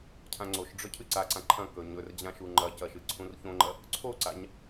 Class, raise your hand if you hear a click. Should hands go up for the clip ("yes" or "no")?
yes